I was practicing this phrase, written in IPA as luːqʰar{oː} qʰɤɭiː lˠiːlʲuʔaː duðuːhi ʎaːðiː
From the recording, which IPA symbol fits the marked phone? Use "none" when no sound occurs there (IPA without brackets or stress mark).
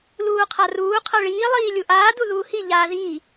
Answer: uː